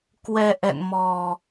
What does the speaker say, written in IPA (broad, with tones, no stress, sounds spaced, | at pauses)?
k w ɛ˧ ʔ ɛ̰˧˨ n m ɔ˨˩